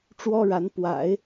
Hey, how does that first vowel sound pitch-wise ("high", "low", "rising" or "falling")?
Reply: high